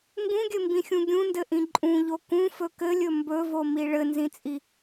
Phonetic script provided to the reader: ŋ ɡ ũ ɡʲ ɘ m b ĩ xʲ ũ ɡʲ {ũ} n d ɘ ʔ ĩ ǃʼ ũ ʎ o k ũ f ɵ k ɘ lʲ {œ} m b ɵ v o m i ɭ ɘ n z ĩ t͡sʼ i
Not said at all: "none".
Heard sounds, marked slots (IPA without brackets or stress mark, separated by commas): ũ, ɵ